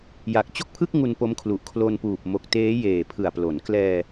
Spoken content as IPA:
j a˨˩ k̚ t͡ɕ o˥˩ k̚ pʰ ɯ˥˩ k̚ ŋ u˧ n p o˦˥ m kʰ l u˨˩ ʔ kʰ l o˧ n p uː˨˩ p̚ m o˨˩ k̚ t eː˦˥ j eː˨˩ pʰ ɯ˨˩ a̯ p l o˩˦ n k l ɛː˧

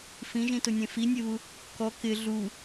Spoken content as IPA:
f ĩ ʒ ĩ t ʊ nʲ ẽ f i nʲ e β u | k ɔ k ɪ ɮ u

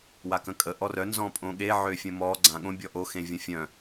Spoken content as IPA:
w a k ə̃ kʼ ə ʔ ɔ r œ n z ɔ̃ pʼ õ ɠ e ʕ ø fʲ ə̃ m ɔ ɡ͡ǀ ã ɠ õ bʲ ɔ ʔ o x ẽ vʲ ə̃ fʲ œ̃

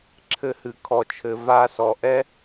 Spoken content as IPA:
ǁʰ ɘ˧ h ɨ˨ kʰ ɔ˨ t͡ʃʰ ɘ˨ v a˧ s ɔ˨ ʔ ɛ˦

